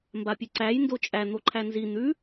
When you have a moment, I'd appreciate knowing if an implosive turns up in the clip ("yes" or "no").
no